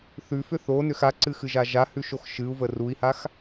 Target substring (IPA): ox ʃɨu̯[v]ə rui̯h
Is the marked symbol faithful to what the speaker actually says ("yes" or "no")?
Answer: yes